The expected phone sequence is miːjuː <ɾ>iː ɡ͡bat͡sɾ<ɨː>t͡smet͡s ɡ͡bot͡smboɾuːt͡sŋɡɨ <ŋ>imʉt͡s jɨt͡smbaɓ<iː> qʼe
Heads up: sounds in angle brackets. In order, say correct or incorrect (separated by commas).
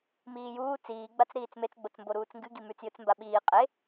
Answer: incorrect, incorrect, incorrect, correct